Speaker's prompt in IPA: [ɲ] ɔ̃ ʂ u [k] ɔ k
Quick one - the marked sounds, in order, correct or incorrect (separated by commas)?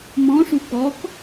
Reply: incorrect, correct